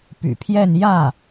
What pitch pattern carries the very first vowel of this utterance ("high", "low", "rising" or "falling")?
low